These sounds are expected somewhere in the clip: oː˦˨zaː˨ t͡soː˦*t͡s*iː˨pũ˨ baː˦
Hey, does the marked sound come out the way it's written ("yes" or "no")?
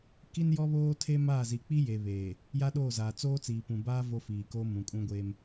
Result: yes